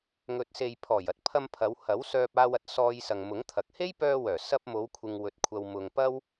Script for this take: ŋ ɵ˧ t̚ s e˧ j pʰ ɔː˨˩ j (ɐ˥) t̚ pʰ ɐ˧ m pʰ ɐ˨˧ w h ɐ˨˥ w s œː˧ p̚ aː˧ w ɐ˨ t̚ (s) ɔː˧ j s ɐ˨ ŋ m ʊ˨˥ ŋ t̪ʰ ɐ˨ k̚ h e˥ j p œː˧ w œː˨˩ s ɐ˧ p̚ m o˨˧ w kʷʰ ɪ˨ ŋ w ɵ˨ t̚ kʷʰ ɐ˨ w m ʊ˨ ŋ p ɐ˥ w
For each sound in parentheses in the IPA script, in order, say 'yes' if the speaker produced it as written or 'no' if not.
yes, yes

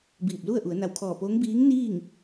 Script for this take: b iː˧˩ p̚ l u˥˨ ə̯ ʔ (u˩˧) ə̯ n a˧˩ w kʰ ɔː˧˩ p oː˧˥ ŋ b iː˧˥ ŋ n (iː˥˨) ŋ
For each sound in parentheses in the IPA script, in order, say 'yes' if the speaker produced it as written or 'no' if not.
yes, yes

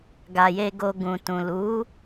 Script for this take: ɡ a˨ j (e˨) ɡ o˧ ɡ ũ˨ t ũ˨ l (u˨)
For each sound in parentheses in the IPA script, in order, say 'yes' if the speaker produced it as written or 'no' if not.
no, no

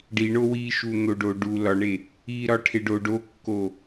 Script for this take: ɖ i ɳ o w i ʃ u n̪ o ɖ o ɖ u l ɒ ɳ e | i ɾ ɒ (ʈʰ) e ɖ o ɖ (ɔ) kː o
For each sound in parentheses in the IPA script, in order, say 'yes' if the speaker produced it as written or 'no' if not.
yes, no

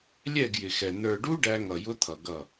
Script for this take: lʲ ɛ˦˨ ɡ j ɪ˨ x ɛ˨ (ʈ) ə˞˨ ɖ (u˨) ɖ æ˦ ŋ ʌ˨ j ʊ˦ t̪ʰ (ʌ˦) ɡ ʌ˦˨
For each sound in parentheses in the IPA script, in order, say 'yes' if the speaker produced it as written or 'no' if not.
no, no, no

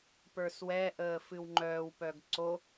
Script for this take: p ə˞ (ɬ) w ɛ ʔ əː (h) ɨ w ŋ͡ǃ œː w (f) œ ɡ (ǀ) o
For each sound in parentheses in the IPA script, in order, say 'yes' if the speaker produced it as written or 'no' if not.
no, no, no, yes

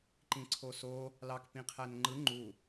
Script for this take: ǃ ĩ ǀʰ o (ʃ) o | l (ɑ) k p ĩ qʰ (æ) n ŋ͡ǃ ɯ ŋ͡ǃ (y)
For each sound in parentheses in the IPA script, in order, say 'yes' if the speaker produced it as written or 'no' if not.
no, yes, yes, no

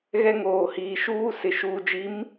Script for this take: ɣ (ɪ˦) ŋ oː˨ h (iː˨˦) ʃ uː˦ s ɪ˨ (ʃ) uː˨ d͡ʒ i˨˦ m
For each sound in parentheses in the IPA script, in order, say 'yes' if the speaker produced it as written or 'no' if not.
no, no, yes

